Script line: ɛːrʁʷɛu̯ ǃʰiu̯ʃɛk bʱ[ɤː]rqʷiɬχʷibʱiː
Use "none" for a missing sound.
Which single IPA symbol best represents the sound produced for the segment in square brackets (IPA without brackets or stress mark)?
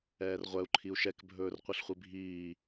ɵː